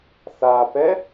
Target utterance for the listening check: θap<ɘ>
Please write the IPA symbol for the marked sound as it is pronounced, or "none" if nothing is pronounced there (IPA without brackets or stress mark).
ɛ